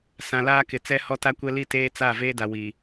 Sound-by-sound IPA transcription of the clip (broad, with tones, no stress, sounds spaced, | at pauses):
s ã˨ l aː˦ k ɪ˨ t͡s ɛ˦ h ɔ˦ t a˦ kʷ ɛ˦ l i˦ t eː˦ t͡s a˦˨ v eː˦ d a˨ w iː˨